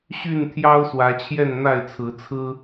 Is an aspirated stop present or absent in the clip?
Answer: present